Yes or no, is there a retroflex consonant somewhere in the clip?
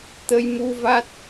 no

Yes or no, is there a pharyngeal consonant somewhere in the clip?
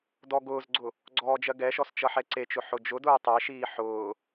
yes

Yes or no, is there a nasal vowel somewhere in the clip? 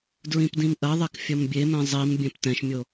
yes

